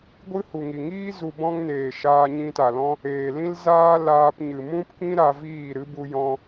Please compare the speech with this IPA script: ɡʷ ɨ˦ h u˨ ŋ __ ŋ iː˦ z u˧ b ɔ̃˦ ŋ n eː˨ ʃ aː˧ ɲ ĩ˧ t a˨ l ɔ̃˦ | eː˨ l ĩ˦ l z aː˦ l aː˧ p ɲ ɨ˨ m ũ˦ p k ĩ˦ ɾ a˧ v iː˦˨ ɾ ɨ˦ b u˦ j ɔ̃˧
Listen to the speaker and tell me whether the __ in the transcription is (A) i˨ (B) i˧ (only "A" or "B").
A